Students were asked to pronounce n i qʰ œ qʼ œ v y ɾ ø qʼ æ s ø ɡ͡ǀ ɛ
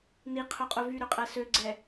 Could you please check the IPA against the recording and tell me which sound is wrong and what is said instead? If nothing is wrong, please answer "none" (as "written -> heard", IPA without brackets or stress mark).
none